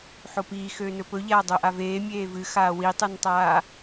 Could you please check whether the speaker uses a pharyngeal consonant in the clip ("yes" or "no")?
yes